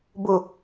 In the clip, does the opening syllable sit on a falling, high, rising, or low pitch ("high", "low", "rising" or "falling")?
low